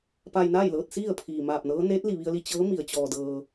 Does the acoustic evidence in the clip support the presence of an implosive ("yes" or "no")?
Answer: no